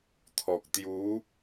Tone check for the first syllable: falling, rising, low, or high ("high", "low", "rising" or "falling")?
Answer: low